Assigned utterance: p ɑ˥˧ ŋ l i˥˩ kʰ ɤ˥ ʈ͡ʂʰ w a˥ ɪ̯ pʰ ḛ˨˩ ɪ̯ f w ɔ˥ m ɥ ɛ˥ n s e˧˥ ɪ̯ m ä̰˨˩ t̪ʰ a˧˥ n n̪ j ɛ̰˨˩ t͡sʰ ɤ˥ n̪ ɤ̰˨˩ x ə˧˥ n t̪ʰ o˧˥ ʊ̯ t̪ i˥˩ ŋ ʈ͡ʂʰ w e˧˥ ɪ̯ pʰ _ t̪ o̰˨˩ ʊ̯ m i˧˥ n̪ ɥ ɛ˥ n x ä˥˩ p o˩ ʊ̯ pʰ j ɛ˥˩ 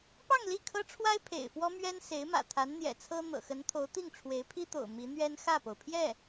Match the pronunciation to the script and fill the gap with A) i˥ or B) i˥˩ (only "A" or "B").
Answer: A